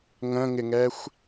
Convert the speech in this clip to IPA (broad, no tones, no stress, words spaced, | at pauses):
ŋə̃ŋɪŋɛxʷ